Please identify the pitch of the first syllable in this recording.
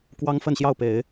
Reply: high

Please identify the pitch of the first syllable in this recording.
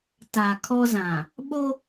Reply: low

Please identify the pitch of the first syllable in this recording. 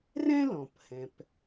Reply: high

